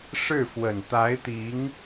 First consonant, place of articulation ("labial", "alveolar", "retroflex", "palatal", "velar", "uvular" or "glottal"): retroflex